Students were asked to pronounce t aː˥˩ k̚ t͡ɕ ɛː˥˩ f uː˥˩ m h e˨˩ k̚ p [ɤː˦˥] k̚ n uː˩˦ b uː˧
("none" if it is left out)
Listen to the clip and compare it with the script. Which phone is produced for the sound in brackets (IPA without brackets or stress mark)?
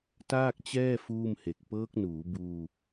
ɤː˦˥